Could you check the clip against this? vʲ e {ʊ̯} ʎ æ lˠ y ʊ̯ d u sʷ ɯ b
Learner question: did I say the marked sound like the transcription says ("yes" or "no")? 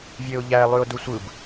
yes